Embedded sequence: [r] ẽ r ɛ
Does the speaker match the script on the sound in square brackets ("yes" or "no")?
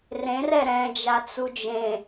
yes